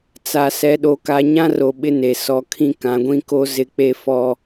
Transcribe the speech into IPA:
t͡s a˨ s ɛ˨˦ ɗ o˨˦ k a˨˦ ɲ ã˦ r o˨ ɓ ɪ˦ n e˨ s ɔ˨ kʰ ĩ˦ k ã˨˦ ɡʷ ĩ˦ k o˦ z ɪ˦ k͡p e˦ f ɔ˨

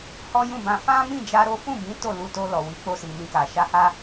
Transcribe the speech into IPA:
h ɔ˦ j ũ˦˨ b ã˧ f ã˦ m ĩ˦˨ d͡ʒ a˧ ɾ o˦ f ũ˦˨ b ĩ˨˦ t o˦˨ l u˧ t o˧ l ɔ˨ w i˨˦ k͡p o˧ s i˨ m ĩ˧ k a˨ ʃ a˧ h a˦

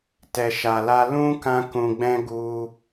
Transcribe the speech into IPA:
t ɛ˨ ʃ a˨ l a˧ l ũ˦ k ã˦ k ũ˧ ɡ͡b ɛ̃˦ ɡ u˦

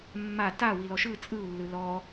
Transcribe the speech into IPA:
mː a t a w i l ɔ ʃ ɯ t͡sʼ ɯ u̯ lː ɯ l ɔ

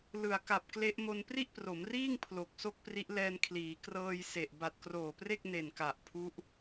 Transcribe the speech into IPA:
l ɯ˨˩ a̯ k a˨˩ p̚ k l e˦˥ ʔ m o˧ n p r i˥˩ ʔ p r o˩˦ m r iː˥˩ ŋ pʰ l o˨˩ k̚ s o˥˩ k̚ p r i˦˥ ʔ l ɛː˧ n kʰ l iː˩˦ k r ɤː˧ j s e˨˩ ʔ b a˨˩ t̚ k r oː˨˩ p r e˥˩ k̚ n e˨˩ n k a˨˩ ʔ pʰ u˦˥ ʔ

